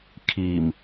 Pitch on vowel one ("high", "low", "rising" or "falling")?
low